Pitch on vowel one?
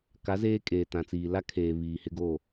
rising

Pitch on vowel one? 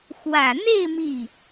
low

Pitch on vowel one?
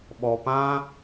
low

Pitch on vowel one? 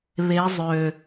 rising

